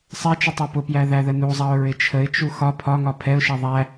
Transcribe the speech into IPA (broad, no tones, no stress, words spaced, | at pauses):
sˤɛt͡ʃʊ tˤɛpʊpjæ ðæðənuzˤɑʊ̯ ɹɪt͡ʃʰəɪ̯t͡ʃu xɒ pʰɒŋɒ pʰɛʊ̯ʃɛ ðˤæ